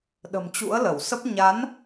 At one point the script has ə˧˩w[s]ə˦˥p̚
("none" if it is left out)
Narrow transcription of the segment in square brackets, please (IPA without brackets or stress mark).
s